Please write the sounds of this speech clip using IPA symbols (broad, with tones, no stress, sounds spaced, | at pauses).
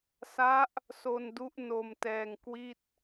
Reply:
s a˦˥ ʔ | s o˧ n d u˦˥ ʔ n o˧ m t ɛː˧ ŋ k w i˥˩ t̚